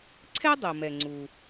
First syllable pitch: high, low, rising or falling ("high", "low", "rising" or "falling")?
high